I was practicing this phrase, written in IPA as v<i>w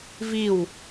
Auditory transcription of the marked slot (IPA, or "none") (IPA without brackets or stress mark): i